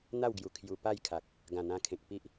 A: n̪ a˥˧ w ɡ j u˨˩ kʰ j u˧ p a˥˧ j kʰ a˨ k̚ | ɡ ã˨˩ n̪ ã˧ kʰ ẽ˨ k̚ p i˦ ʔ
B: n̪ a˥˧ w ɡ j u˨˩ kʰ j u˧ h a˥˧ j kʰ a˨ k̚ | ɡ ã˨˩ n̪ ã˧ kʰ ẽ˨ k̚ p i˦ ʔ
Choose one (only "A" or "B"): A